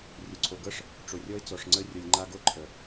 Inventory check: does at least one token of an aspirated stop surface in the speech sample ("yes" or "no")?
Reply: yes